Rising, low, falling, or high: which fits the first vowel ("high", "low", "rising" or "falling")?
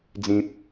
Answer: high